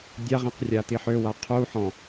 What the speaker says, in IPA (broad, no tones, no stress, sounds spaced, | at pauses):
dʲ a ʁ ĩ q rʲ a t̪ i ħ ø w a qʰ u ħ ɔ̃